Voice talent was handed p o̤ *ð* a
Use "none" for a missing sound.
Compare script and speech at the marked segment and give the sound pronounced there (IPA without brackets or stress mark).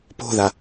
ð